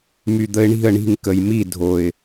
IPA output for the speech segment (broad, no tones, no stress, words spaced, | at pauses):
myd̪əɪ̯ɳi̤ə̯ ɳi̤ŋ kəjmi dʱoɪ̯